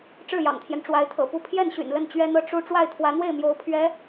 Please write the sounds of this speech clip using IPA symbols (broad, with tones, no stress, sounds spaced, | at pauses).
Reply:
ʈ͡ʂ ɻ̩˥˩ j ɑ̰˨˩ ŋ t̪ʰ j ɛ˦ n ʈ͡ʂ w a˧˥ ɪ̯ t̪ʰ ɤ̰˨˩ p u˥˧ pʰ j ɛ˥˩ n ɕ y̰˨˩ n l ə˥˩ n t͡ɕ ɥ ɛ˥ n̪ ɤ˥˧ ʈ͡ʂ u˥˧ ʈ͡ʂ w a˥˩ ɪ̯ t̪ʰ w ä˧˥ n̪ w e˥˩ ɪ̯ m j o˧˥ ʊ̯ pʰ ɥ ɛ˧˥